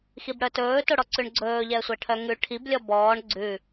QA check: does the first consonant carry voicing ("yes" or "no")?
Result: no